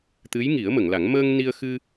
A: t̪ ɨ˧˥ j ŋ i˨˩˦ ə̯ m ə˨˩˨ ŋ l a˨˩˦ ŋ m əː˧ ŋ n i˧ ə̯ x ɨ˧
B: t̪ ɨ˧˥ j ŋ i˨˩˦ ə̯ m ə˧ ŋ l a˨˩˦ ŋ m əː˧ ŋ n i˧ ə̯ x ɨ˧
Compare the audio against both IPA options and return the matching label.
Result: A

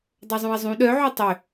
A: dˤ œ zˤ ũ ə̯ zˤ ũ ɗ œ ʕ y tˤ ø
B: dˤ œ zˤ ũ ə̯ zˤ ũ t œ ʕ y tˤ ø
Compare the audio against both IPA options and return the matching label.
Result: A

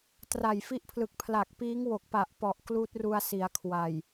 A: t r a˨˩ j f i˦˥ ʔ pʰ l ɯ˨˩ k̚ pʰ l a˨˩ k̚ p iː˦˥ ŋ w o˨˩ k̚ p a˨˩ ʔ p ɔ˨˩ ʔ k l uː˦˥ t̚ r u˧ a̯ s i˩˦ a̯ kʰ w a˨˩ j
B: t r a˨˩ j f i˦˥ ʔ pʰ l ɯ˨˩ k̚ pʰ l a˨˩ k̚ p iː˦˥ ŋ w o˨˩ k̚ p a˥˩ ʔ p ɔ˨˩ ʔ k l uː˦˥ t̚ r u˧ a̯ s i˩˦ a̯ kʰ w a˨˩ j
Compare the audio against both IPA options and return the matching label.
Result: A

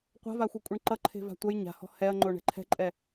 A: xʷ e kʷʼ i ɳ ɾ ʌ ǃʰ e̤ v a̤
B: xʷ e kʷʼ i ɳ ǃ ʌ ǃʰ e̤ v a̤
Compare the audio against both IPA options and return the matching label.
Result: B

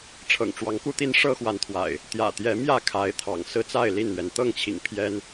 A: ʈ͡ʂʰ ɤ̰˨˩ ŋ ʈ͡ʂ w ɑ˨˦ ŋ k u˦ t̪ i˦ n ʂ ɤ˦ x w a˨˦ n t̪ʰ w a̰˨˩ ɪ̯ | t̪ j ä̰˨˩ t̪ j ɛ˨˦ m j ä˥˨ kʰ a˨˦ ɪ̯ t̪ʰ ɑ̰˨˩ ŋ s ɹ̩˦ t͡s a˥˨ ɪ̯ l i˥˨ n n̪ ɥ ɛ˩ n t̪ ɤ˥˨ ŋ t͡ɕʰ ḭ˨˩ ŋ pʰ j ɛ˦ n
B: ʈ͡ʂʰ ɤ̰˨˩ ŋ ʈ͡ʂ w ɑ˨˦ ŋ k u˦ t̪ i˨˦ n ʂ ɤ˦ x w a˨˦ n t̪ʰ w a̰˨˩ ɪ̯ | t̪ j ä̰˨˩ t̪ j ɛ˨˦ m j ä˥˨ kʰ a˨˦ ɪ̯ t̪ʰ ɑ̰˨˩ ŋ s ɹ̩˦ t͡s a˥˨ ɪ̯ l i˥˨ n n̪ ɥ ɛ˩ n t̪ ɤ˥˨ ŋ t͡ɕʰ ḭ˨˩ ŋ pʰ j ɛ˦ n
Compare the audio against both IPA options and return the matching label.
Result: A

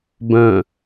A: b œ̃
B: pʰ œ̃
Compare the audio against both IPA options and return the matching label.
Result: A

